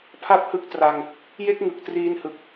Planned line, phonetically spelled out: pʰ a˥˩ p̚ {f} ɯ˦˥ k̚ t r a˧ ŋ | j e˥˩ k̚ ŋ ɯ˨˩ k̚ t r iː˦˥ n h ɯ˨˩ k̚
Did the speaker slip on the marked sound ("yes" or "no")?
yes